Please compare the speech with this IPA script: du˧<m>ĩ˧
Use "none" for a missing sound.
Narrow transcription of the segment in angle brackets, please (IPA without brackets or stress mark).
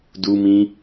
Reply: m